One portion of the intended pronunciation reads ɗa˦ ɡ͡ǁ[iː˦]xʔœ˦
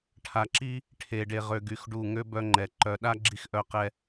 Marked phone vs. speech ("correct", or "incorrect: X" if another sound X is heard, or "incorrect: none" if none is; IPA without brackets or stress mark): incorrect: i˦